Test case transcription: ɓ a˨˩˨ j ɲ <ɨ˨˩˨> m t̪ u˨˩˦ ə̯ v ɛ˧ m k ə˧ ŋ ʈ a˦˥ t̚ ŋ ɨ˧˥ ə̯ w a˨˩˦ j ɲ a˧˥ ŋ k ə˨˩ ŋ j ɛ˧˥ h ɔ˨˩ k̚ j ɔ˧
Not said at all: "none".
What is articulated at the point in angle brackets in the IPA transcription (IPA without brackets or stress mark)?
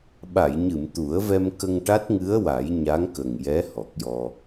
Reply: ɨ˨˩˨